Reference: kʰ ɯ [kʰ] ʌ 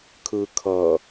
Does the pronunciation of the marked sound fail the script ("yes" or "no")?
no